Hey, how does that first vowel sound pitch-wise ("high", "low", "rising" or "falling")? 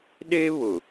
high